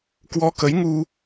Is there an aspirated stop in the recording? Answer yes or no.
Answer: no